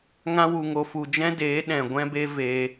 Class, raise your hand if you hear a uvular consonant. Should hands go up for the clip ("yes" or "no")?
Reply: no